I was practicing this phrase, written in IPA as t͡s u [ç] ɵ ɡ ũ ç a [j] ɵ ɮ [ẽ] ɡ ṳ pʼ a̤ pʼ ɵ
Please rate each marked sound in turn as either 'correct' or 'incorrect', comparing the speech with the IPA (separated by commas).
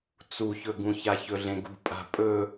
correct, incorrect, correct